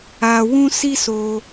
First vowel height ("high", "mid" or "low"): low